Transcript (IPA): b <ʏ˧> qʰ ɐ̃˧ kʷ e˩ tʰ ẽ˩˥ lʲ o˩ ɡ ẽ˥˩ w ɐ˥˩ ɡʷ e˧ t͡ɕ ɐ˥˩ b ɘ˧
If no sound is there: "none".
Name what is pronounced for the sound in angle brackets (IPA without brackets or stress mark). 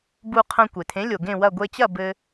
u˧